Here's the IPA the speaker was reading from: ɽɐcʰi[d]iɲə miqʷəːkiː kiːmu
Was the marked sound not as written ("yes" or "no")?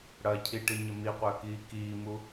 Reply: yes